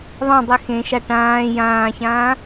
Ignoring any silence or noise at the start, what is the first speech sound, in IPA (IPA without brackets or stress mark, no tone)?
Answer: ðˤ